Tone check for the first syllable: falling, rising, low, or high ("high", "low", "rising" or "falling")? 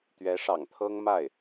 rising